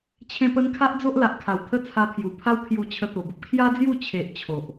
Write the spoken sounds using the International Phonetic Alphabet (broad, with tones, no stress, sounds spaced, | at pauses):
t͡ɕʰ ẽ˧ p ə˧ n kʰ a˦ ʔ d͡z o˦ ʔ l a˨ ʔ kʰ a˨˩ w t̪ʰ ə˦ t͡sʰ a˧ pʰ j u˨˩ pʰ a˦ w kʰ j u˧ t͡ɕʰ ə˧ t̪ o˨˩ b ə˦ p̚ kʰ j a˦ d͡z j u˥˧ t͡ɕʰ e˨ ʔ t͡ɕʰ o˨ ʔ